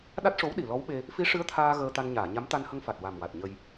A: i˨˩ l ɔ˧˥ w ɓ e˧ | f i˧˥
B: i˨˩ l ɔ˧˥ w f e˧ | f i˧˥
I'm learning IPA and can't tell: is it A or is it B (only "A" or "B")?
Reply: A